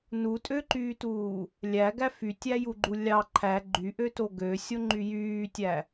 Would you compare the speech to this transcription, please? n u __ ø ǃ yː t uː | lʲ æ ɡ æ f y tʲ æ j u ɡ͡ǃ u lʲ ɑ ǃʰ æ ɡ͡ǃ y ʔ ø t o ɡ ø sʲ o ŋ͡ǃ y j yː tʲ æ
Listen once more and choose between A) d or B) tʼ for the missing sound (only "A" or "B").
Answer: B